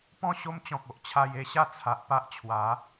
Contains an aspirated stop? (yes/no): yes